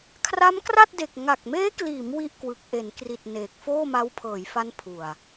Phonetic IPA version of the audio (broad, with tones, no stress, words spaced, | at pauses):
kʰra˦˥mkra˥˩t̚de˨˩k̚ ŋa˨˩k̚meː˦˥kliː˩˦m wi˥˩ʔkwɯ˨˩k̚ ʔe˩˦nkri˨˩t̚ neː˨˩k̚ foː˥˩ma˦˥wpʰɤː˩˦jfa˦˥n pʰu˨˩a̯